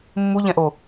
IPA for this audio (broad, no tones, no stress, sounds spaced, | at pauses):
mː u ʎ ɛ̃ ʔ o